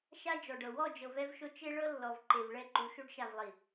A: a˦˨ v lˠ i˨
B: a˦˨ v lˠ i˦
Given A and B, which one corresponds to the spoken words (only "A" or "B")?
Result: A